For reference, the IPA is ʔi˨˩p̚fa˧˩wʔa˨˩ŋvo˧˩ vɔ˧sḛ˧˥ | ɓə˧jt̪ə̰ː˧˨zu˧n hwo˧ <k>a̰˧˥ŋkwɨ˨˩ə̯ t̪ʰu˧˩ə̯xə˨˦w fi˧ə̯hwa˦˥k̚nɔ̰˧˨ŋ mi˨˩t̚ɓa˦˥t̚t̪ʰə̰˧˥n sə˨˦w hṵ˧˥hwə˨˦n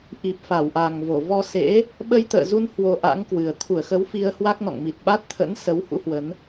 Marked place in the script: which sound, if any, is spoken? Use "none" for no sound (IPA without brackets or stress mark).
ʔ